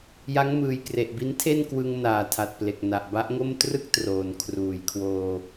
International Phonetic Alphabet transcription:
j a˦˥ ŋ m ɯː˨˩ j k r e˨˩ ʔ b i˦˥ n tʰ e˥˩ n k w ɯ˧ ŋ n aː˨˩ tʰ a˨˩ t̚ p l e˨˩ k̚ n a˨˩ ʔ b a˦˥ ʔ ŋ o˥˩ m t r ɯ˥˩ k̚ t r oː˨˩ n kʰ r uː˩˦ j kʰ w oː˧

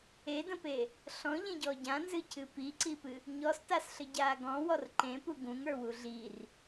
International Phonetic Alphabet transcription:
e d ə̃ p e | ɬ ɔ̃ ʎ ẽ ɟ ɔ ɟ ã n z ɨ cʰ ɨ p i ǀ i p ɨ | ɲ ɔ s t a s ɬ ə ɟ aː ɡ ɔ̃ w ɔ r ǃ ẽ p u ɡ ũ ŋ ə˞ w u ɮ i r

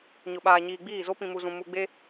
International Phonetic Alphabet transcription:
ɲ ʊ˨ ɓ aː˨ ɲ iː˨ ɡ͡b iː˦˨ z o˦ p ĩ˨ m u˨ z ũ˨ m u˨ ɡ͡b e˦

